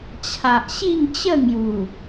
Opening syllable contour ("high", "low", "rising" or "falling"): low